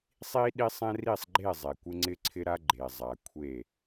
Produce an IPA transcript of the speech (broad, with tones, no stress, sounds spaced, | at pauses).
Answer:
sˤ i˦ ɗ i˦ sˤ ɛ̃˦ r i˦˨ sˤ ɡ͡ǃ e˦˨ zˤ e˨ kʷ ɪ˦ ŋ͡ǀ ɪ˦ ǀʰ ɪ˦ ɾ a˦ ɡ͡ǃ e˨ zˤ a˨ kʷʰ e˦˨